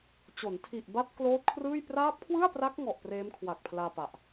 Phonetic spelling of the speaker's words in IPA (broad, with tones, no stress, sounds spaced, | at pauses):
t͡ɕ o˩˦ n tʰ i˨˩ ʔ b a˦˥ t̚ k l oː˦˥ t̚ kʰ r ɯː˥˩ j p r aː˦˥ p̚ kʰ w ɯ˥˩ a̯ p r a˦˥ k̚ ŋ ɔ˨˩ ʔ p r eː˦˥ m kʰ w a˨˩ k̚ pʰ l aː˧ p a˨˩ ʔ